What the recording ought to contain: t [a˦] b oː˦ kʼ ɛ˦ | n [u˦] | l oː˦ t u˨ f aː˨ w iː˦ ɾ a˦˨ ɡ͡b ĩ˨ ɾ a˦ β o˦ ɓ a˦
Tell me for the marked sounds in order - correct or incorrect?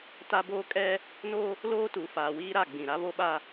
correct, incorrect: o˦

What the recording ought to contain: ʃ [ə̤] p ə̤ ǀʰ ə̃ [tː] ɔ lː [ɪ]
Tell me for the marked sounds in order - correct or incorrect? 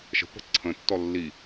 correct, correct, incorrect: i

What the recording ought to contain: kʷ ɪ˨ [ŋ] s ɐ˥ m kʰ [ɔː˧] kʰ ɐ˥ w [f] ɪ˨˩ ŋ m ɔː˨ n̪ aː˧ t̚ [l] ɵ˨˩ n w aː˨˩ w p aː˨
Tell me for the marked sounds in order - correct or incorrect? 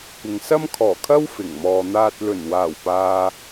correct, incorrect: ɔː˨˩, correct, correct

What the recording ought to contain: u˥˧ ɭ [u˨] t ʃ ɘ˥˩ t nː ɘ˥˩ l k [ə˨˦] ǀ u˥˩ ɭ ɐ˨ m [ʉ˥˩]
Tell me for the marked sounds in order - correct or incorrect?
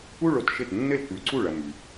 incorrect: o˨, incorrect: ʉ˨˦, incorrect: ʉ˨

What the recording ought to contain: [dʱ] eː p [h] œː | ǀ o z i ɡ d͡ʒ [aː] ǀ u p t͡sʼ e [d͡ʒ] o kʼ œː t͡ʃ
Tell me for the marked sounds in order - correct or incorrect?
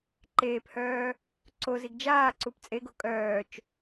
incorrect: ǃ, correct, correct, incorrect: ɡ

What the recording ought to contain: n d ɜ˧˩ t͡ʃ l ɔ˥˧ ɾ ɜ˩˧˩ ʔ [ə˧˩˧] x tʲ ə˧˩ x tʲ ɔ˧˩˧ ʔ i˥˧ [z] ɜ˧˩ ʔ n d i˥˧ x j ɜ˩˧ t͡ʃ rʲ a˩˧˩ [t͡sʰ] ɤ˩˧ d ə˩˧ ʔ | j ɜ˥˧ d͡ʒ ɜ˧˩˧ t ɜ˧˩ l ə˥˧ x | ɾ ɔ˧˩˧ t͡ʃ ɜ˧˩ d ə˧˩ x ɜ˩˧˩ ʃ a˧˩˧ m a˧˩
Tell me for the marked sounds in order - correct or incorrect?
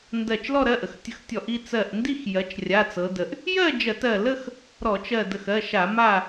correct, incorrect: t͡s, incorrect: t͡s

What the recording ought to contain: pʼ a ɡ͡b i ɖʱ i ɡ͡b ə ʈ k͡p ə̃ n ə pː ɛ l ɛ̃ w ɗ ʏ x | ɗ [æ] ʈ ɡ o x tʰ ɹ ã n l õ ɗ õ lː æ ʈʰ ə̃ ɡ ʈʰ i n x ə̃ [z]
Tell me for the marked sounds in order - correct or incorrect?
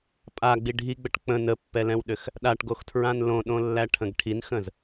incorrect: a, correct

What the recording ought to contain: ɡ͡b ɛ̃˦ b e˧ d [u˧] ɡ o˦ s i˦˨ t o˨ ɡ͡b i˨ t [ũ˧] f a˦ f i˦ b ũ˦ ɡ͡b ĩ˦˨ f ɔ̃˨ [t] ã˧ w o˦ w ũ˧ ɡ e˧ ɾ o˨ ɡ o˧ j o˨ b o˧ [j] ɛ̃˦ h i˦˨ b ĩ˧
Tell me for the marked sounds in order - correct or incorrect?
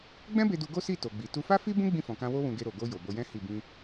correct, incorrect: u˧, incorrect: k, correct

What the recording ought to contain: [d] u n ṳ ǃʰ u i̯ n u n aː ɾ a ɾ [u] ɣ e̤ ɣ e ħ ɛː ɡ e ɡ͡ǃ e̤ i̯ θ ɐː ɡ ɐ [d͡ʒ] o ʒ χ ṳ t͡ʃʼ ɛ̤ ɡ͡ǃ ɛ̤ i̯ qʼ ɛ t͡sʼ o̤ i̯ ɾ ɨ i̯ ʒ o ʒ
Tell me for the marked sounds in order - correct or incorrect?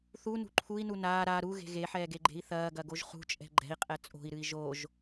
incorrect: θ, correct, incorrect: ɡ

